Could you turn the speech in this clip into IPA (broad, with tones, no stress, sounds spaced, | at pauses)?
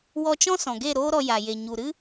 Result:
w ɔ˧ t͡ʃ ɔ̃˦ s ɔ̃˨ ɡ e˦˨ ɾ oː˦ ɾ ɔ˧ j a˨ j e˨ ɲ u˨ ɾ ɨ˦